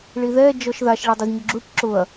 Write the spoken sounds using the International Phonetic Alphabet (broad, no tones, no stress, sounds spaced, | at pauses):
ɭ i ð ɛ d͡ʒ ɔ ʃ ð a ʃ ɭ ɪ dˤ ɪ z ɲ ʊ ɡ͡ǁ u ʈ ǁ ʊ ɐ̯